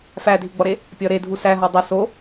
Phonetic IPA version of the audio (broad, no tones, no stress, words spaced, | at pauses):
fædʱiɡ͡bɒɾe | pʲɒɾedʱu sæɦɒ dˤæ so